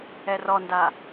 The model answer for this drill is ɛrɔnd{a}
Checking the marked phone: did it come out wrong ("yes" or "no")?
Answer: no